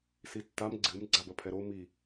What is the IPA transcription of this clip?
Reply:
s i tː a m ɡ͡ǀ ɨ m ɡ͡ǀ a b ɐ pʰ ɛ ɾ o m i

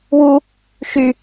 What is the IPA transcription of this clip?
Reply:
w u | ʃ y

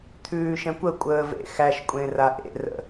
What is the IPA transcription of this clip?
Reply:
t̪ʰ ʉː ʃ ɛ̃ kʷ ə kʷʼ əː v ḛ x æ ʃ kʷʼ ẽ r a ʔ ḛ r ə̰

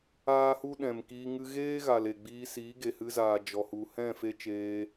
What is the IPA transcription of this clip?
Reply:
aː˦ h u˦ ɗ ɛ̃˨ m k iː˧ ŋ ɨ˧ ɣ eː˦ ɣ a˨ l e˨ ɡ͡b iː˧ s iː˨˦ ɡ e˨ h ɨ˧ z aː˨ d͡ʒ ɔ˨ h u˨ h ɛ̃˦˨ f e˦ t͡ʃ eː˧

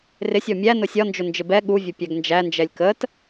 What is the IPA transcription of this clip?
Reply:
r ɪ sʲ ɔ mʲ æ n ʊ sʲ ɒ n d͡ʒ ʊ n d͡ʒ ɪ b ɛ ɠ u vʲ ʊ pʲ æ ɡ n d͡ʒ æ n d͡ʒ ɛ lʲ k ə t

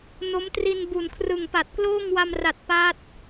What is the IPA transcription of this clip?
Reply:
n o˦˥ m t r i˧ n b u˨˩ n kʰ r ɯ˨˩ ŋ p a˨˩ t̚ k l oː˥˩ ŋ w a˧ m r a˨˩ t̚ p a˦˥ t̚

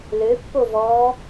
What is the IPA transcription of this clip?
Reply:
l ø pː o v ɔː

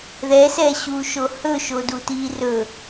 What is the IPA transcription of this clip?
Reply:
ð ɛ s ɛ ɕ uː ʃ o h ɵ ʃ o d u t iː r ɵ

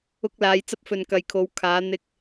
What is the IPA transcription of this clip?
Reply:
ʊ˧ k̚ l aː˨˧ j t͡s ɐ˥ p̚ f ɵ˨ n k ɐ˨ j kʰ o˨˧ w kʰ aː˨˧ n̪ ɪ˧ k̚

